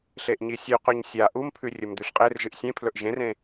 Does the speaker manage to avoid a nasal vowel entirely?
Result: no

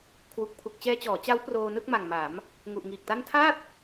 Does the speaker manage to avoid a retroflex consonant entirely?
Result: yes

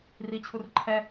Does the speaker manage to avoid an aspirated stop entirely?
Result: no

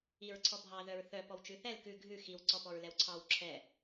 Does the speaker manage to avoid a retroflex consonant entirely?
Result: yes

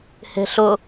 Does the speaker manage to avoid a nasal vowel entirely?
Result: yes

